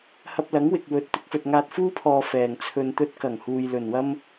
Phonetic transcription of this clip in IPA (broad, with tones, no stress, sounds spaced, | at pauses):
h ɐ˧ p̚ l ɐ˨˥ ŋ w ɪ˨ k̚ w ɵ˨˥ t̚ t̪ ɪ˨˥ k̚ f ɵ˨ t̚ ŋ aː˧ t̚ f uː˥ pʰ ɔː˨ f ɛː˨˩ ŋ t͡sʰ ɵ˧ n t̪ ɵ˧ t̚ k ɐ˨˩ ŋ h uː˨ j l ɵ˨˩ n w ɐ˥ m